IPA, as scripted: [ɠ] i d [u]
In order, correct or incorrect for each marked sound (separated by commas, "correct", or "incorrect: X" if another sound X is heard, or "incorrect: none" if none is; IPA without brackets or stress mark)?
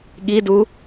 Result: correct, correct